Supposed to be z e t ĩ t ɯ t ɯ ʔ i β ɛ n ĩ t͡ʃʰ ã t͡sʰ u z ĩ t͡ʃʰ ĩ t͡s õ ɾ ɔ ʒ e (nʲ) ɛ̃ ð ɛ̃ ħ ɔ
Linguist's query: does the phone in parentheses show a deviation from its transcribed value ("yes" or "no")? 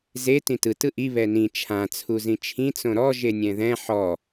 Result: no